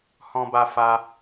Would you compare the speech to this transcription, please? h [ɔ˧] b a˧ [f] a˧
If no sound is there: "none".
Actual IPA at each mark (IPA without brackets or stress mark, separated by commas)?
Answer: ɔ̃˧, f